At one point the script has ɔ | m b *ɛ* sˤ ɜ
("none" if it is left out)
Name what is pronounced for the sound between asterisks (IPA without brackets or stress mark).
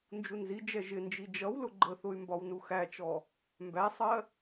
æ